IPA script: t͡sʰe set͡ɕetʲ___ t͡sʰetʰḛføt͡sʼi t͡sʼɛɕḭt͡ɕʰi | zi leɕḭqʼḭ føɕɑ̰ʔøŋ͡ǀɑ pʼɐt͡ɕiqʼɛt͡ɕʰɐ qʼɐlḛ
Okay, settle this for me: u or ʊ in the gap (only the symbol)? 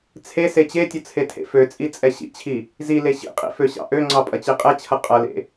ʊ